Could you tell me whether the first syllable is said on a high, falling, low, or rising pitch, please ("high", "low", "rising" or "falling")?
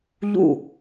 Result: falling